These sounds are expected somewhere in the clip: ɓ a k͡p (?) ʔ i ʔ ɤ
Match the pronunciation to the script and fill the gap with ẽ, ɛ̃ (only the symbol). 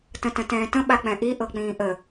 ɛ̃